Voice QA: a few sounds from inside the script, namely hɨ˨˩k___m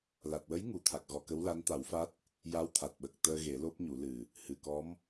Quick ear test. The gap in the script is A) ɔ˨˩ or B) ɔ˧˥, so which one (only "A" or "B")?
B